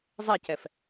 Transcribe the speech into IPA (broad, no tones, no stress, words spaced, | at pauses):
zˤecɛf